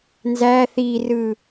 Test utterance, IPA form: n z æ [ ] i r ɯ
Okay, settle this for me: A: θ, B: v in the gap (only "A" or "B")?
A